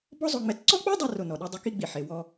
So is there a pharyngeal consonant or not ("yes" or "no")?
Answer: yes